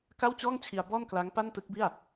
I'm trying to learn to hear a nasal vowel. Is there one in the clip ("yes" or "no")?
no